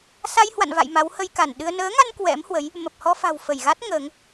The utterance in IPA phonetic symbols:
sa˧jhwa̰˧˨nva̰˧˨j ma˨˦whə˧jka˧˩n ɗɨ˧ə̯ nəː˨˦ŋa˧n kwɛ̰˧˥mhwə˨˦j | mə˨˩p̚hɔ˧fa̤˨˩w fə˧˩jɣa˦˥t̚ ŋəː˨˦ŋ

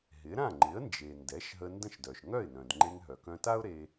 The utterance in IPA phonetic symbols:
ɦɪ˩˥ ɾã˥˩ŋ͡ǃɪ˩˥ə̯nd͡ʒe˩ ndɛ˩˥ʃɦə˧ ndə̃˥˩ʃdœ˩ʃ ŋœ˥˩ɪ̯nœ̃˩dŋ͡ǃe˧ŋ ɦœ˩kœ̃˧ta˥ʊ̯ɾe˧

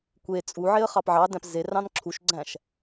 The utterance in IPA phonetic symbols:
kʷe t͡sʼu ʕeə̯χɑpʕɑdæ̃p zerɑ̃n ǁʰuʃɡ͡ǀæ̃ʃ

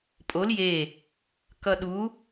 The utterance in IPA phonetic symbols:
pʼol je | kʌɗu

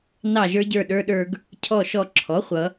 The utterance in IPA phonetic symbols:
nɑ˧˩ʒə˞˧ɟə˞˧˩ ɗə˞˧ɗə˞˧ɡ | cʰɔ˧˩ʃɔ˧˩ ǁʰɔ˩˥χʷʌ˩˧

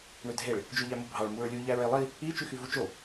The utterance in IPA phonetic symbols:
ɳødʱeɭ | d͡ʒøʎæmobʱɑɭ muɹlʲu ʎæɹelˠi | i t͡ʃyxyvut͡ʃo

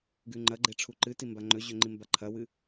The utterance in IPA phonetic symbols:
ɡʉŋ͡ǃɐɡ͡ǃe ʈ͡ʂʰuǃɨti mbaŋ͡ǃɵʑɵ ŋ͡ǃimbaǃʰɐwɨ

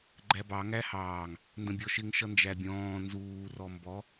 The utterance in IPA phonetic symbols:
ɡ͡ǃæbɑ ŋæhɑːŋ | ndə̃bʲɔʃɪŋ ʃʌnd͡ʒæbʲɔ̃ː nzuːrɔ mbɔ

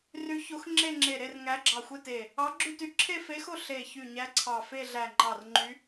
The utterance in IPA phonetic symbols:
ry˧˥ço˧˥x ŋ͡ǁe˥˧ŋ͡ǁe˧˩ ɾe˥˧rŋæ˧˥ɡ͡ǁɑ˧˩ xʷe˥˧te˧˩ | ɑ˧˥ɡ͡ǁy˥˧ty˧˥ ǁʰe˥˧fe˧˥xo˥˧ ɬe˧˩çy˧˩ɲæ˧˥ ǀʰɑ˧˩fe˥˧ɮæ˧˩ ŋ͡ǃɑ˧˩rŋ͡ǃy˧˥

